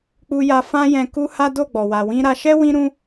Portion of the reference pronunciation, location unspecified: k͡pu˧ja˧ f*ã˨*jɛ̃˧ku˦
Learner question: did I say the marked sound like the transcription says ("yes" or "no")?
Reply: no